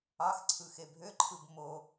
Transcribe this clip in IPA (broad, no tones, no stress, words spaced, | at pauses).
ɑxǀʰɯ xebʱøǃʰɯb mo